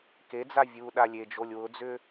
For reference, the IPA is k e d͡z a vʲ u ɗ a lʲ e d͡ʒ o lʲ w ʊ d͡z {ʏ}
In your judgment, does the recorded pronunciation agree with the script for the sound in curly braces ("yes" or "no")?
yes